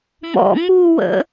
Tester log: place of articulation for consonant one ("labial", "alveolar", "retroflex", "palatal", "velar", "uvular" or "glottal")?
labial